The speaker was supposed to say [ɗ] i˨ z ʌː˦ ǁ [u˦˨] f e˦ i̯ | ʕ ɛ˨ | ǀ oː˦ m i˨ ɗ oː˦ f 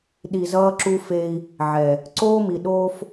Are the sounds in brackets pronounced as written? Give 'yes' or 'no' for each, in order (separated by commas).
yes, no